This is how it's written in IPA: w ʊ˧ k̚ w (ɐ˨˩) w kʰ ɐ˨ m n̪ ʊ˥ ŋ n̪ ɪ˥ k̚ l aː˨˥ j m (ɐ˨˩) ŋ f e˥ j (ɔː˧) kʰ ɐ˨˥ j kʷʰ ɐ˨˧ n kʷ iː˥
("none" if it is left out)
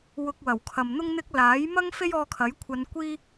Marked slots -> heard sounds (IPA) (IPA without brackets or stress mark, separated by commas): ɐ˨˩, ɐ˥, ɔː˧